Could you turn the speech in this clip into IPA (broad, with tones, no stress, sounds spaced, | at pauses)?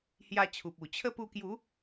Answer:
h j a˧ t͡ɕʰ u˨ p̚ u˨˩ t͡ɕʰ ə˦ p u˧ k j u˨˦